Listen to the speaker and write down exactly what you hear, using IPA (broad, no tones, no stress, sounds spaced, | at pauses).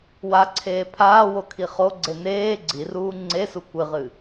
w a ǀʰ eː pʰ aː w o kʰ i χ o ɡ͡ǀ e n eː ɡ͡ǀ i r uː ŋ͡ǀ e s u kʷ ɨ ʁ ɨ